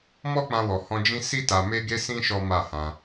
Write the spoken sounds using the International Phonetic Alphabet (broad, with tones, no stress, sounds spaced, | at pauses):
m ɔ˦ k͡p ã˧ w ɔ˨ h ɔ̃˧ d͡ʒ ĩ˦ s i˦ t a˧ m e˦ ɡ e˦ s ĩ˦ ʃ ɔ˦ m a˦˨ h ã˧